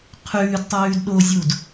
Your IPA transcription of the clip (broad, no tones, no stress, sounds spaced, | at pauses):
qʰ ʉː d tˤ ʉː d ɗ o zʲ u d